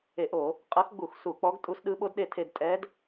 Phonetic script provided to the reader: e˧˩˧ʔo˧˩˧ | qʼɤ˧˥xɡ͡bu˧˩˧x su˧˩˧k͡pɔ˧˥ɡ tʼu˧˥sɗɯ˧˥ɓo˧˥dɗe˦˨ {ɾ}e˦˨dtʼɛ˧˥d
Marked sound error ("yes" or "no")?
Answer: yes